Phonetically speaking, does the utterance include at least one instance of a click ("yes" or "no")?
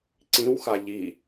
yes